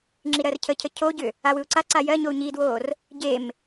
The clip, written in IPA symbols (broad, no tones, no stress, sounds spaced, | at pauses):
ŋ͡ǁ i ɾ ɜ r cʰ ə cʰ ə cʰ o ɟ ʏ | a w ɯ u̯ ǀ a ǀ a j ɜ ɲ o u̯ ɲ i d w oː r | ɟ e m